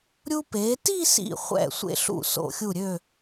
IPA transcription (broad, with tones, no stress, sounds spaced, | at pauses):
ɾʲ u˧ p e˩˧ t i˥˧ s ḭ˧˩ χʷ ɛ̰˥˧ sʷ ḛ˧ ɬ ṵ˧˩ s o̰˧˩ xʲ u˧˩ ɾʲ ø˧˩